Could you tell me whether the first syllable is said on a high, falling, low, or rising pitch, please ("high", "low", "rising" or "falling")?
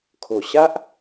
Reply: low